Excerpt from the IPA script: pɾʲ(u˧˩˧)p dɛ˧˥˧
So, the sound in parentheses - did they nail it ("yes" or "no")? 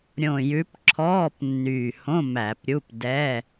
no